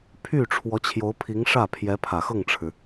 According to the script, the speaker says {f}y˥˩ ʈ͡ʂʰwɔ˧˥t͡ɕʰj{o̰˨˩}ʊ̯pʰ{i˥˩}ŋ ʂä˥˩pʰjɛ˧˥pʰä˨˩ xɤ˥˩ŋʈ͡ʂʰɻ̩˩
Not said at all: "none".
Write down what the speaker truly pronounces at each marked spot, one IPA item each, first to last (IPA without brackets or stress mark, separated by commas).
pʰ, o˧˥, i˧˥